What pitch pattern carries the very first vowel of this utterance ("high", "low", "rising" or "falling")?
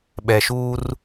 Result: low